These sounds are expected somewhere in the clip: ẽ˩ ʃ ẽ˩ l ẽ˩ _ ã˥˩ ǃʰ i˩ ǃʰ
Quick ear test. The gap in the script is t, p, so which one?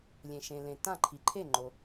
t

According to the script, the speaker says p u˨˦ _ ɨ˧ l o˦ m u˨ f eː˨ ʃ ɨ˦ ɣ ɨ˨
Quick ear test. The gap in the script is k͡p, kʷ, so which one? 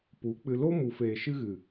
k͡p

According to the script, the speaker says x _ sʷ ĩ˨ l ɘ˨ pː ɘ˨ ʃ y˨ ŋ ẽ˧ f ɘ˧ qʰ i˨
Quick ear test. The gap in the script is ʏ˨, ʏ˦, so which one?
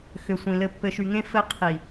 ʏ˨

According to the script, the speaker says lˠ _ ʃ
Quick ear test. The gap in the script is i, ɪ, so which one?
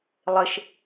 ɪ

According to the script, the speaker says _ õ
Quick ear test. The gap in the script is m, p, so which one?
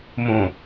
m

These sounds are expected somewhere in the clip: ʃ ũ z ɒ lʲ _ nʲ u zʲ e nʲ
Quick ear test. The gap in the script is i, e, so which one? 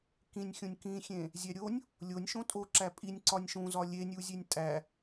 e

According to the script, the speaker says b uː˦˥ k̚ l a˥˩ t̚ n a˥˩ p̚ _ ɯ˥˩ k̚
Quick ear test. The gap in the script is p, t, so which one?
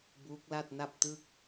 t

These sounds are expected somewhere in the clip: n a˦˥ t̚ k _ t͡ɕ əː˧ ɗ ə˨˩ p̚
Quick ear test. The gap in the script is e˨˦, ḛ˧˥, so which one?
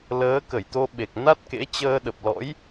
ḛ˧˥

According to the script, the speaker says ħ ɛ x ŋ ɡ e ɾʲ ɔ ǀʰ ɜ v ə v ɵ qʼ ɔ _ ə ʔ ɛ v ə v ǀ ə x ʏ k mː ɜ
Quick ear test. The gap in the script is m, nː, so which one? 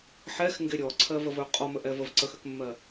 m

